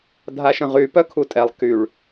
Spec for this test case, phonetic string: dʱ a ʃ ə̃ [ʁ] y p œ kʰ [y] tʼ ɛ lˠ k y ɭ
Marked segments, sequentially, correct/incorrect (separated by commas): correct, incorrect